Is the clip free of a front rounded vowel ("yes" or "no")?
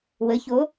yes